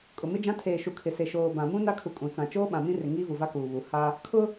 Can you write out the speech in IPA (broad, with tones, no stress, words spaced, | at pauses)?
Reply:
kʼʊ˨mɪ˦d͡ʒã˦ tʰeː˨ʃu˨kʰɪ˨se˨ ʃoː˨ bã˨mũ˦ na˦kʰu˨kʼũ˨t͡sã˨ t͡ʃoː˦ ɓã˨mĩ˦rɪ˨ ŋiː˦vu˨va˦ kuː˨βu˨˦ ha˦ | kʰʊ˦